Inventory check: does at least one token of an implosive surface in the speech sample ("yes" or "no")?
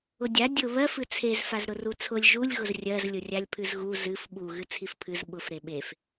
yes